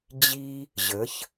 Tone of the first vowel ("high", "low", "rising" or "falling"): high